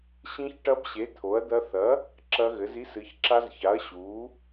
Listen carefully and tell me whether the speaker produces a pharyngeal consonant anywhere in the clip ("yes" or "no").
no